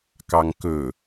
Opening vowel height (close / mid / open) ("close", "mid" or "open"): open